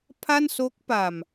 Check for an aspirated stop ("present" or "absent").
present